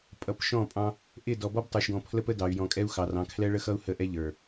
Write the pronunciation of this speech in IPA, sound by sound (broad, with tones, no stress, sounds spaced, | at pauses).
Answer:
pʼ ʌ˨ p ʃ ɔ̃˦˨ pʼ ɑ̃˦ | ʔ ɪ˦˨ d ɔ˨ b ɔ˦ b tˤ ə˞˨ ʃ ɡ ɔ̃˨ pʰ l ə˦ p ə˦ d ɑ˨ y̯ j ɔ̃˨ kʼ ɛ˦ u̯ x ɑ˨ r ɑ̃˨ kʰ l ɛ˦ ɭ ə˦ x ʌ˦ u̯ h ə˦˨ ʔ ɛ˦ ʎ ə˞˨